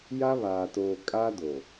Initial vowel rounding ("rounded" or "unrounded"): unrounded